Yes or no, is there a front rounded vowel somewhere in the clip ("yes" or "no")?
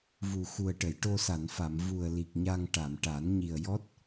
no